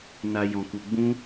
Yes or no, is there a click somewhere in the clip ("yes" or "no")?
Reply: no